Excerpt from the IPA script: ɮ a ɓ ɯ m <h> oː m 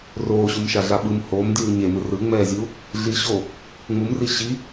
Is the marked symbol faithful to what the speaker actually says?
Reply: yes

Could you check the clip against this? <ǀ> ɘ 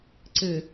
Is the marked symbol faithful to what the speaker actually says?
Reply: yes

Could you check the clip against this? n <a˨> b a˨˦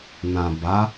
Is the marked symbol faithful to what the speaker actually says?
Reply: no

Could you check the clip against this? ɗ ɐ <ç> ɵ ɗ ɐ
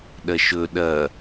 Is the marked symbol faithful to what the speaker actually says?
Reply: no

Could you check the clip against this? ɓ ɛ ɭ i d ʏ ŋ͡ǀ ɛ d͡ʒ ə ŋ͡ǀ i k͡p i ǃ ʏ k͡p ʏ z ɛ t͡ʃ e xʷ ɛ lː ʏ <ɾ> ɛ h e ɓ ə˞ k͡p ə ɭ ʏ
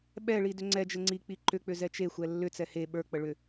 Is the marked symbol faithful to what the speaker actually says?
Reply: no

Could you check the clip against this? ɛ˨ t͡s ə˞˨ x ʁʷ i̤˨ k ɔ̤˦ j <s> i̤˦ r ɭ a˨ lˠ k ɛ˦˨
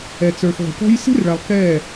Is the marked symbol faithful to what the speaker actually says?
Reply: yes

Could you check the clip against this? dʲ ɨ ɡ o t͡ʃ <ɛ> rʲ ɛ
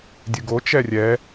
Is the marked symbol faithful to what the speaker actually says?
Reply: yes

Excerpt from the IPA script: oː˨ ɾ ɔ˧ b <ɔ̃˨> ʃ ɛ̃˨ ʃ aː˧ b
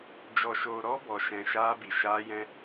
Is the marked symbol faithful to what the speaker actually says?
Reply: no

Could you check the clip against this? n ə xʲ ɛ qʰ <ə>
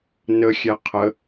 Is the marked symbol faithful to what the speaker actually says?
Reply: yes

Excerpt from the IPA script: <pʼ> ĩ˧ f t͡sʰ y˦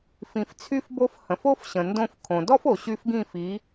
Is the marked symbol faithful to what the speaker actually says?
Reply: no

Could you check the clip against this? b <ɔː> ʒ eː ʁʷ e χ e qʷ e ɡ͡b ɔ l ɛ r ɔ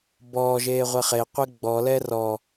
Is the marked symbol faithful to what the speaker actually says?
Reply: yes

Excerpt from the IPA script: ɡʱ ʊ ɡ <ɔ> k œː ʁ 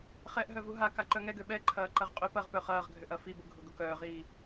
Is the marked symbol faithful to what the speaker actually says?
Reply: no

